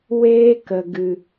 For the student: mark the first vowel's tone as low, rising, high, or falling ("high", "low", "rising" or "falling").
high